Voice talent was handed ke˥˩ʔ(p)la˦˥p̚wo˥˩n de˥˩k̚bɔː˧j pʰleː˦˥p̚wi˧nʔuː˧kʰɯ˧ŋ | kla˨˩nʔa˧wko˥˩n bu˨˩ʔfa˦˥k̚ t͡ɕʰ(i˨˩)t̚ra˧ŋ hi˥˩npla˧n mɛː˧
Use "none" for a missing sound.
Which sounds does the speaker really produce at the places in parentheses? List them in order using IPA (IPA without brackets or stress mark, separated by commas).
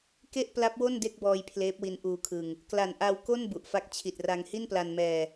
p, i˨˩